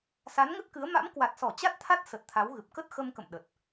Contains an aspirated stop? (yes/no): yes